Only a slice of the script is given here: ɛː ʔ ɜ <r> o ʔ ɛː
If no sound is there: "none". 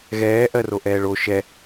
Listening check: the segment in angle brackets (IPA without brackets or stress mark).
r